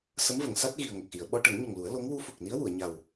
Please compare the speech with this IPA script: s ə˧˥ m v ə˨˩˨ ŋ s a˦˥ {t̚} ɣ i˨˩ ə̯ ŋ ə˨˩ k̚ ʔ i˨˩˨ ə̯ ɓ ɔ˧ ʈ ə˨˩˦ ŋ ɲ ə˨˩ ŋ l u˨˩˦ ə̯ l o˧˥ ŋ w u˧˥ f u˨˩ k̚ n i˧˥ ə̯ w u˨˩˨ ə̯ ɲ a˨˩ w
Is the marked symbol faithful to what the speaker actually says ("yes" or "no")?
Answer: yes